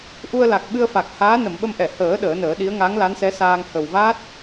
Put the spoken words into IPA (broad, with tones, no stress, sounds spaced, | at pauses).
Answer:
ʔ u˧ ə̯ l a˨˩ k̚ ɓ ɨ˧ ə̯ f a˨˩ k̚ h aː˧˥ n ə˨˩˨ m ɓ ə˧ m ʔ ɛ˨˩˨ h əː˨˩˦ ɗ əː˨˩˦ n əː˨˩˦ ɗ i˧˥ ə̯ ŋ a˧˥ ŋ l a˧˥ n s ɛ˧˥ s aː˧ ŋ h ə˨˩ w v a˦˥ t̚